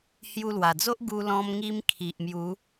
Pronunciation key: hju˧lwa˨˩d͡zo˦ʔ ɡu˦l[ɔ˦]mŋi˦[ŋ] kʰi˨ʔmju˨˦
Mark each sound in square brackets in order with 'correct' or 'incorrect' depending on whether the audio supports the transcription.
incorrect, incorrect

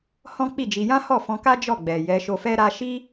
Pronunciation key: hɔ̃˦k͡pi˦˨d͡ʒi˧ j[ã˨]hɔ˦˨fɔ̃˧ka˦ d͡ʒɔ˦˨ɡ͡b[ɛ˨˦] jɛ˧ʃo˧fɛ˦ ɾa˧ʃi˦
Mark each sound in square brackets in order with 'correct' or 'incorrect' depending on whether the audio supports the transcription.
incorrect, incorrect

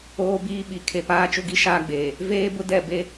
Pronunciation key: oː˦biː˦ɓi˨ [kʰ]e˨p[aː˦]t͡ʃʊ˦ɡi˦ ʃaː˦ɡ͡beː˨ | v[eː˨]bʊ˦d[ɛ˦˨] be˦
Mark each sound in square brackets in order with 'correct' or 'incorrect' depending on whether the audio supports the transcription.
correct, correct, incorrect, correct

